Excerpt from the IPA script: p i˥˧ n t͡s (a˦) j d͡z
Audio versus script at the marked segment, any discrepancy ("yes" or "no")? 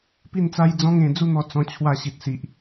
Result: no